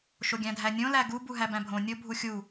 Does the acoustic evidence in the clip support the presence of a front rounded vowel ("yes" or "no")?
no